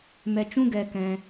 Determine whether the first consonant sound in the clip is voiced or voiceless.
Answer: voiced